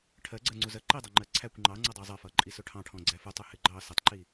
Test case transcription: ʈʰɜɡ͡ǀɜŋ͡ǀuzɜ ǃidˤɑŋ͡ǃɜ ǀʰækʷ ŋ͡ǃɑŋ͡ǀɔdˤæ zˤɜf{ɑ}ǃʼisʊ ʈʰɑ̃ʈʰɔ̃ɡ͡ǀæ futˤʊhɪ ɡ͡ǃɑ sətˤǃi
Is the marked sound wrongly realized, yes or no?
yes